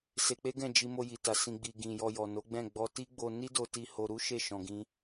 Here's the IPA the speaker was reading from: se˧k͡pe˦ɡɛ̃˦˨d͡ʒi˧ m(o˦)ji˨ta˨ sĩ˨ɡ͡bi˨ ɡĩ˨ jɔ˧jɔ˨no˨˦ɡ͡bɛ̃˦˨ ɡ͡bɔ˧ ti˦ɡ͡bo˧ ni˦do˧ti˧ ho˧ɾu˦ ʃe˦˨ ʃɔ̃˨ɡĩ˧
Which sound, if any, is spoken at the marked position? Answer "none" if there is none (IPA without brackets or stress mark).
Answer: o˧